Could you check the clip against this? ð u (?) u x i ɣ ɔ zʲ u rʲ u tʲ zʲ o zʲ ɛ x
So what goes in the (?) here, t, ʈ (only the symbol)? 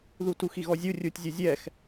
t